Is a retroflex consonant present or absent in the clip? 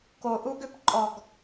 absent